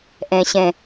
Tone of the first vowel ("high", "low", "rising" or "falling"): low